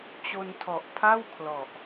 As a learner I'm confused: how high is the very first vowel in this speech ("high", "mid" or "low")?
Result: mid